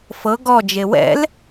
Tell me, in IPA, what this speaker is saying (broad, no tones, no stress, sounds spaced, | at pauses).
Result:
f ɤ ɡ ɔ d͡ʒ e w ɛ̰ l